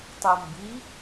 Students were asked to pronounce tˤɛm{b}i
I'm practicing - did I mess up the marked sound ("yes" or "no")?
no